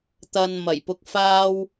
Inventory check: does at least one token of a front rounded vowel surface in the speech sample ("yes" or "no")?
no